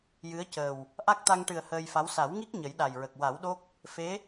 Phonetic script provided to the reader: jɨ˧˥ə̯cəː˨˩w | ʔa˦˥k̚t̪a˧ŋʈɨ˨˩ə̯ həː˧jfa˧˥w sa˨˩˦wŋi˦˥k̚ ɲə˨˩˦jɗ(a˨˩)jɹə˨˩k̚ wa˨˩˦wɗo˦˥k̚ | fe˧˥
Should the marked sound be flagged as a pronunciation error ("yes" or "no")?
no